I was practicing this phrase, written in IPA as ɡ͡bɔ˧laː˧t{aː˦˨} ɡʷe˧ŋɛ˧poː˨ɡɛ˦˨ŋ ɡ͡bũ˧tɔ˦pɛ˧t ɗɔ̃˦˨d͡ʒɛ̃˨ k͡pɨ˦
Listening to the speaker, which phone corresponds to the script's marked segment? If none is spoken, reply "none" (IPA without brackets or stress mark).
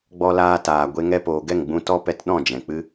aː˨